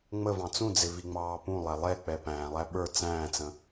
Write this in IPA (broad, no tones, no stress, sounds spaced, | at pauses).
ŋ͡m ə v ɑ̃ t͡s ũ d͡z ɪ v i ŋ͡m ɑː p ũ lˠ æ lˠ ɛ k͡p ɛ p æ̃ː lˠ æ ɓ ə˞ t͡s æ̃ː t͡s ə̃